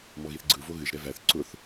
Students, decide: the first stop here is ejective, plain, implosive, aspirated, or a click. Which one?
click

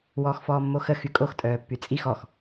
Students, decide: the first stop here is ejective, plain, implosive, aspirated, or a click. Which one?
ejective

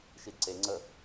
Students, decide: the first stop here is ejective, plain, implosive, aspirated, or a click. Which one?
plain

